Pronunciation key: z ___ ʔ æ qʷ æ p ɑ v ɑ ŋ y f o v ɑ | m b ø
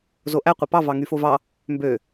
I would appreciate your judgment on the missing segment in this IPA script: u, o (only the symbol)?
o